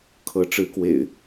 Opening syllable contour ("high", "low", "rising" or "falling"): rising